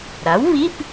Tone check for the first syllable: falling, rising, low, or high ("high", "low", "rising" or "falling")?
rising